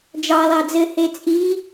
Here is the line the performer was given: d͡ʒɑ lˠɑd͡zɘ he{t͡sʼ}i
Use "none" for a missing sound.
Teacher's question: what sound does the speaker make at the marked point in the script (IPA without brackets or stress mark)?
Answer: t͡sʼ